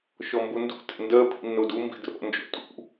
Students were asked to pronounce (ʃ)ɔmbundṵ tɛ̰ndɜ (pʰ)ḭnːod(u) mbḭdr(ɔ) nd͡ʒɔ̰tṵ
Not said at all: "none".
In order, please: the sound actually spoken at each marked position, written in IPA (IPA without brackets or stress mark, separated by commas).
ʃ, pʰ, u, ɔ̰